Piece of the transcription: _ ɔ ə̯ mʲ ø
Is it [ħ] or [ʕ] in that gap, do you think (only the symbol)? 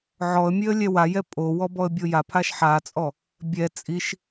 ʕ